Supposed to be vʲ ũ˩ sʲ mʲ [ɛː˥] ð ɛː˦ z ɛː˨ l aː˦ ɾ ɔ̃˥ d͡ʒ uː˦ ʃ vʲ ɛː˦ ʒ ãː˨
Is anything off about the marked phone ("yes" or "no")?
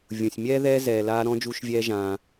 no